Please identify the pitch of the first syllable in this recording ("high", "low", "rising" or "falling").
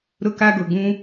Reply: high